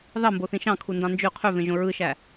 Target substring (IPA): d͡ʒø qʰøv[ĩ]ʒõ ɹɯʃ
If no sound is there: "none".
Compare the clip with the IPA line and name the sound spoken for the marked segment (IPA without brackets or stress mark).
ẽ